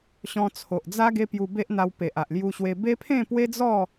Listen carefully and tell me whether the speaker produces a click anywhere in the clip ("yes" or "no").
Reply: no